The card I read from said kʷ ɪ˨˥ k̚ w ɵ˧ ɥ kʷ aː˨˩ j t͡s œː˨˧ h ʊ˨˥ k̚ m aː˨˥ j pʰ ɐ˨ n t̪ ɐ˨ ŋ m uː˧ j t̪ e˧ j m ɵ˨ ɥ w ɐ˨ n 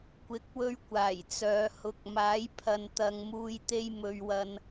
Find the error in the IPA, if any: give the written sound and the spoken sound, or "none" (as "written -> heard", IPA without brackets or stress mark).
none